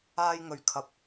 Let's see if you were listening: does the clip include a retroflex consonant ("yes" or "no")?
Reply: no